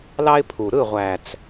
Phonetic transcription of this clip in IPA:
l ɑ˦ ɪ̯ pʰ u˨ ɾ ɯ˦˨ ʁʷ æ˨ t͡s

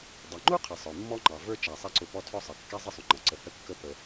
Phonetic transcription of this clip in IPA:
dˤ ɛ˩ ŋ͡ǃ u˥ qʰ ə˩ sˤ ə˞˩ mː ɔ˥ ŋ͡ǃ ɑ˩ v ə˞˥ t͡ʃ æ˩ sˤ ɛ˦ ǀ ʊ˨ p ɔ˦ tʰ ɔ˥ sˤ ʌ˩ kː ɛ˥ zˤ ɪ˥ sˤ ʊ˨ ŋ͡ǃ ʌ˩ ǀ ə˨ h ə˥ kː ə˥ p ə˨

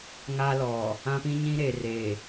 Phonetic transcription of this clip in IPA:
ŋ a˦ l ɔ˨ | ã˦ p ĩ˦ ɲ ĩ˦ ɾ eː˨ r eː˨

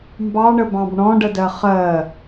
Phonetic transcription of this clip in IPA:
m b ɑ ɳ ə b ɑ̃ b ɳ ɔ̃ ɖ ə d ɜ χ ɜ

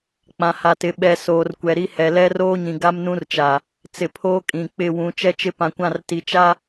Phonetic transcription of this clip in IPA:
k͡p ã˨ h a˨ t ɪ˨ ɓ ɛ˨ s oː˨ r kʷ ɛ˨ ɾ i˦ h ɛ˨ l ɛ˦ r oː˦ ɲ ĩ˨ ɡ a˦ m n ũ˦ r t͡ʃ a˨ | t͡s ɪ˨ pʰ oː˦ kʼ ĩ˨ k͡p ɪ˦˨ w ũ˨˦ t͡ʃ ɛ˦ t͡ʃ ɪ˦ p ã˨ kʷ ã˦˨ r t i˨ t͡ʃ a˦

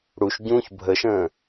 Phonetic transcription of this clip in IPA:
ɽ u ʃ ɟ ũː ç bʱ ə ʃ ə̃ː

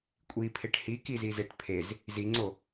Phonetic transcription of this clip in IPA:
kʷʼ i pʰ e ʈ h i k i z i z e ʈ pʰ e z | z i ŋ͡ǀ o

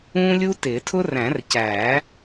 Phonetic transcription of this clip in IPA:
ũː˥ lʲ u˥ t ɪː˨˩˦ tʰ ʊ˥ r æ̃˨˩˦ r c æː˨˩˦

